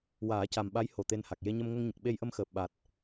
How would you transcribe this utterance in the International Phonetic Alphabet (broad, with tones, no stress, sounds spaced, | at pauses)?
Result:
w aː˨˩˦ c a˨˩ m ɓ a˧˥ j h o˨˩ t̪ e˧ n h a˨˩ k̚ j e˧ ɲ ə˧ m ŋ ə˧ ŋ ɲ ə˨˩ k̚ ɓ e˧ j ʔ ə˧ m x əː˨˩ p̚ ɓ a˨˩ t̚